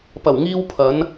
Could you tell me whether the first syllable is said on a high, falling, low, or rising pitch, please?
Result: low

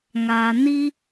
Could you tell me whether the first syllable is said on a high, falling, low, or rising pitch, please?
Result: low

